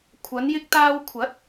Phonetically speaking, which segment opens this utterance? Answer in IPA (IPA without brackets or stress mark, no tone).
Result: kʷʰ